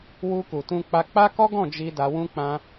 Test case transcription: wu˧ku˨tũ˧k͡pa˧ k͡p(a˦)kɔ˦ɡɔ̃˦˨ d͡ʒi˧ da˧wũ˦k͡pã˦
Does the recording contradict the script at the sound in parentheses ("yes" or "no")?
no